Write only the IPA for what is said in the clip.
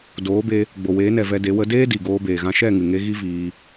doː˨˦be˧ | ɡ͡bo˨weː˨˦nɛ˨ vɛ˧ de˨˦ wə˧deː˦ di˨ɡoː˧ beː˨ɣã˧ ʃɛ˦˨ŋɨ˨ŋe˧ ɣi˦viː˧

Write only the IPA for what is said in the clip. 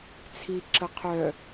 t͡sʰiǁə qʰœ

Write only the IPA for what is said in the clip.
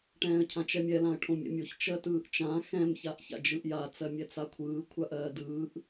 ʈɛ̃ːə̯cʰãt͡ʃɛmʲɛ lãə̯ʈʰõmʲɛ̰mʲoç t͡ʃɜtɯːʔt͡ʃã xɛ̃m çaʔça̰d͡ʒɯʔja t͡sɜmʲɛt͡sakʷʰɯː kʷʰaʔɜːdɯːʔ

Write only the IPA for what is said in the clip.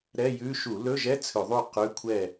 ɾɛ˧˥˧jʉ˧˥˧ ʃu˧˩˧lɵ˧˥˧ʒɛ˧˥˧ t͡sʰɵ˧˩˧ðˤu˥˨ qʉ˧˥˧kʷʰɛ˥˨

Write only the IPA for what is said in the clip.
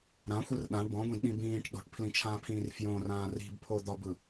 ɾãxʷɯr ɗãɳ bɔ̃ɡʷĩdɗĩ bĩːʈ ɗo̤ʈpʰlĩt͡ʃʰãːpʰĩːr fjõrãː ri̤bpʰod̪ɒbɯ

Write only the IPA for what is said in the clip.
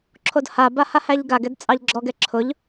ǁʰodhaba hahæʎɡaɡɛd t͡sʼɑʎɡ͡ǁɔɡɛ ǁʰʊʎ

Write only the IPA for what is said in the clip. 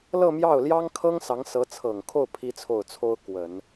lɤ˥˧mjɑ˥˩ʊ̯ljɑ˥ŋkʰɤ˥ŋ sɑ˧˥ŋsɤ˧˥t͡sʰɤ˨˩ŋkʰo˥˩ʊ̯ pʰi˥t͡sʰo˥˩ʊ̯t͡sʰo˥ʊ̯ kwə˨˩˦n

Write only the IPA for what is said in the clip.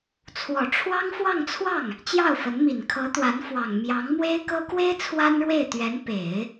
t͡sʰwɔ˨˩ʈ͡ʂʰwɑ˥ŋfwɑ˥˧ŋt͡sʰwɑ˥˩ŋ | t͡ɕjɑ˥˩ʊ̯fə˧˥n mi˨˩nkʰɤ˧˥t̪wa˧˥nfwɑ˨˩ŋ mjɑ˧˥ŋmwe˥ɪ̯kɤ˥ kwe˥ɪ̯ t͡sʰwa˥nɻwe˥˩ɪ̯t̪ɥɛ˧˥n pe˨˩˦ɪ̯

